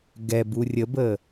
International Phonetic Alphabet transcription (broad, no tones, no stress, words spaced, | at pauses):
ɡɛbu rʲəbə